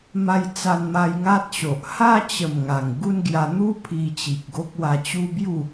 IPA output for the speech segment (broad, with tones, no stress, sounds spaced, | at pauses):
m a˧ j t͡s a˧ n m a˧ j ŋ a˦ t̚ ɕ o˨ ʔ h a˦ t͡ɕ ə˨˩ m ŋ a˨˩ ŋ ɡ u˦ n ɡ j a˧ n̪ u˦ pʰ i˧ t͡ɕ i˨ k̚ ɡ o˦ k̚ w a˧ t͡ɕ u˦ b j u˥˧